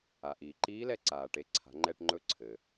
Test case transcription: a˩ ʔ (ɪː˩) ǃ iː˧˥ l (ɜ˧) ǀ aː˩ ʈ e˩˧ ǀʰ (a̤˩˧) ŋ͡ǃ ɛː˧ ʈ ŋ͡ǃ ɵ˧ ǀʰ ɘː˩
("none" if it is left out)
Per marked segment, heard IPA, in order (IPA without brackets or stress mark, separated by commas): iː˩, ɛ˧, a̤˩˧